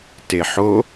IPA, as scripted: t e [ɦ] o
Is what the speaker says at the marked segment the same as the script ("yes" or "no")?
no